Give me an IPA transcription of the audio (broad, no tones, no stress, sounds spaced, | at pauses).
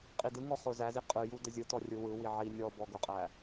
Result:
qʼ i d ɯ ŋ ɔ χ ʊ z æ z i qʼ ɯ j u d ə zʲ ɯ t ɔ rʲ ɯ w ɯ w i ʕ i nʲ ɔ b ɔ ɡ ʊ qʼ æ